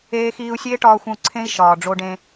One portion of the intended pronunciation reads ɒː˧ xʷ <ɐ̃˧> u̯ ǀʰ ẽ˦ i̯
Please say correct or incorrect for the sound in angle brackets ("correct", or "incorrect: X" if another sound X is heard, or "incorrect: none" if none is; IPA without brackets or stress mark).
incorrect: ə̃˧